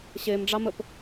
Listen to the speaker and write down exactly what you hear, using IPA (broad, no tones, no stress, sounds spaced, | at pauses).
ɕ e m ɖ͡ʐ ɑ m ə p